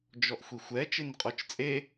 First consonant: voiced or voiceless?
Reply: voiced